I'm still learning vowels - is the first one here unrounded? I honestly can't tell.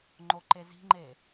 no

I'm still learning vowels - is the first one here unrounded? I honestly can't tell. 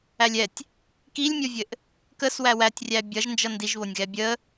yes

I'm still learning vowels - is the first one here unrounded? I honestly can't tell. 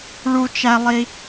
no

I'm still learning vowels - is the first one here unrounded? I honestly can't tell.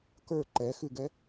yes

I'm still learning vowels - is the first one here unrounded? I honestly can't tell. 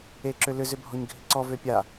yes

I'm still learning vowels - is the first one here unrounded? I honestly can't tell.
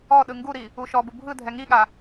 no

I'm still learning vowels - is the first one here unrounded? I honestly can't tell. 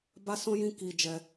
yes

